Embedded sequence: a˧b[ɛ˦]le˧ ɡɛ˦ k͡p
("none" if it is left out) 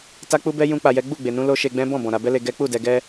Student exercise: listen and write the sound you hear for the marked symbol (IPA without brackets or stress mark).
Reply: ɛ˦